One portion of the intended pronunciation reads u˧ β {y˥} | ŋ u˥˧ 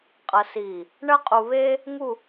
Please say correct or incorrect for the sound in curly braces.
incorrect